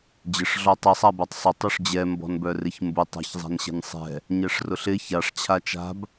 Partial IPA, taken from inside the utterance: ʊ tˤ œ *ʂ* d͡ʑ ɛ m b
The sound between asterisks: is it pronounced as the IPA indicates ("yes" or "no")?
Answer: yes